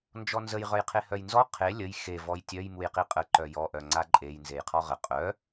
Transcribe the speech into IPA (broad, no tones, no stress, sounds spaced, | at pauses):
n d͡ʒ ɔ n z ə j ʁ œ j qʰ e h œ j n z ɔ qʰ e lʲ ə j x e v ɔ j tʲ œ j m u j q i qʼ ə ǃ œ j ɔ ʔ œ ŋ͡ǀ a ǃʼ e j n z e j qʰ ɔ ʁ ə qʼ œ